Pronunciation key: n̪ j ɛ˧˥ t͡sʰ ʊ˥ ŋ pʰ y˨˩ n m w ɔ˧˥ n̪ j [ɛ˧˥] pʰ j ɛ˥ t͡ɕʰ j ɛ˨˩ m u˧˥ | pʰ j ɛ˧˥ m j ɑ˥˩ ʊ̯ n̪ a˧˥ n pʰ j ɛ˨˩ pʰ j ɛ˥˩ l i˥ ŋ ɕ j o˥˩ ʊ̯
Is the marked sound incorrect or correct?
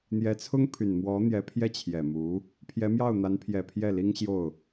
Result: correct